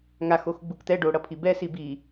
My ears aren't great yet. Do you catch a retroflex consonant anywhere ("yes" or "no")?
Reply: yes